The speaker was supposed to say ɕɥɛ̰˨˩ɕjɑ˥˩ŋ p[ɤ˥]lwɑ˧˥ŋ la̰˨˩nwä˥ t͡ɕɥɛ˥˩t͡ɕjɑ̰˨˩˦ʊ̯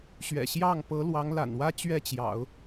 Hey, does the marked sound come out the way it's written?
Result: no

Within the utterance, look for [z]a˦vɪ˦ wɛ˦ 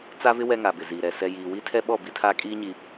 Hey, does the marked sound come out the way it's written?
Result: no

